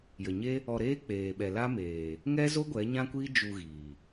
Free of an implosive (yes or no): no